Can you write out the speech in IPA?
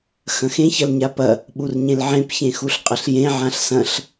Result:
xɐ̃xẽç ɐlɲapɐ | ɓurɲẽlʕẽp çẽxuɬqʼɐɬjẽ ʕãɬsɐ̃ɬ

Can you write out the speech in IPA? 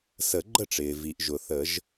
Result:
sə˨˩˦ɡ͡ǃə˥˩ʈ͡ʂɪː˩ vi˩ʔ ʒʊ˩θə˨˩˦ʒ

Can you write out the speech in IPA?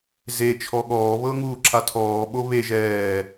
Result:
ze t͡ʃʰɔɠɔːβɤ ŋuːǁʰatʰɔːɓo βe ʒɛː

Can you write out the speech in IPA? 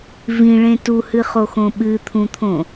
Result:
vĩɭẽ tuhɨχoxõ ɓɨt̪ʰũt̪ʰõ

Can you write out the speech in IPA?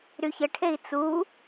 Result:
ɾyçəʈʰei̯ t͡su

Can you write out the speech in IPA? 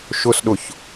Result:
ʃʊsɗʊç

